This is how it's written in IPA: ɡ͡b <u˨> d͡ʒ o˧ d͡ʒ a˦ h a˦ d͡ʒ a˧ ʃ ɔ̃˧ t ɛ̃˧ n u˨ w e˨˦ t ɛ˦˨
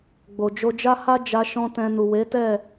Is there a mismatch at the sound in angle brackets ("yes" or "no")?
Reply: yes